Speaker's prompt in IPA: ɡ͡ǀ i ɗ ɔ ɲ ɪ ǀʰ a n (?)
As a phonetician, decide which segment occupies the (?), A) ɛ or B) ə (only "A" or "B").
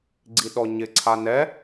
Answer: A